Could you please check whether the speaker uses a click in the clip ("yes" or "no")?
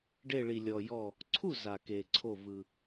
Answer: yes